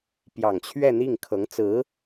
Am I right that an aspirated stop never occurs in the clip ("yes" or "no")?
no